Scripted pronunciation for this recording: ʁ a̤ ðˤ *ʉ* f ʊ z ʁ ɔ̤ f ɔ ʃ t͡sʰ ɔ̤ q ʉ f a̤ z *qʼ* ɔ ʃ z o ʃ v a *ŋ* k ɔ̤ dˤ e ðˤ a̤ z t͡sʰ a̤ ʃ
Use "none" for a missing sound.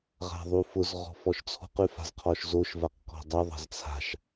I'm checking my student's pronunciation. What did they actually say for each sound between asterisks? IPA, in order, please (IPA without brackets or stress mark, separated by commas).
u, qʰ, q